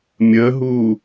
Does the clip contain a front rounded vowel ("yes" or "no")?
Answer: no